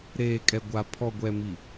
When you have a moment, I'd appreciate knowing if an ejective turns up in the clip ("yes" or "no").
yes